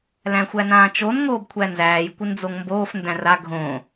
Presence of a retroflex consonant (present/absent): absent